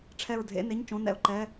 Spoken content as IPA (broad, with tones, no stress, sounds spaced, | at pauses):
ʈ͡ʂʰ ɛ˦˨ ɹ dʱ ḛ˧˥˧ n e˧˥˧ ɲ t͡ʃ õ˧˥˧ n ɛ̰˦˨ ʊ̯ ǃ ɛ˧˥˧